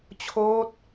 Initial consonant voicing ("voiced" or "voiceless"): voiceless